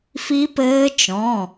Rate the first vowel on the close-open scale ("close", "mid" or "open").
close